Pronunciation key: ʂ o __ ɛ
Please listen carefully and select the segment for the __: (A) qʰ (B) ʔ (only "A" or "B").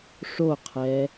A